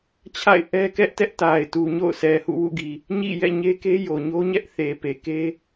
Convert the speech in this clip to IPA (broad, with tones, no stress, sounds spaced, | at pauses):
t͡ɕʰ a̰˦˨ ɪ̯ ʔ ɛ˦ k ɛ˦ ʔ t ɛ˦ ʔ t a˨ ɪ̯ t u˨ ɲ o̰˦˨ ʊ̯ sʰ ɛ˨ h ṵ˦˨ w ṵ˦˨ ɡ i˨ | ɲ ḭ˦˨ j ɛ̰˦˨ ɲ e˦ k e˦ j o˨ ɲ o˦ ɲ ɛ˦ ʔ θ e˨ p e˨ k e˦